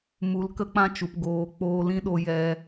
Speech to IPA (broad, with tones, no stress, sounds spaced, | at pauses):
m u˨˦ l k ə˦ k͡p ã˦ t͡ʃ u˨ p ɡ oː˨ k͡p oː˧ l ĩ˦ ɗ o˧ j ɛ˧